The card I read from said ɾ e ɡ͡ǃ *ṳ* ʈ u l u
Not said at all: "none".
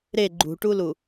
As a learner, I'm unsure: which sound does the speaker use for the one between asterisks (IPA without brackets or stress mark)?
ṳ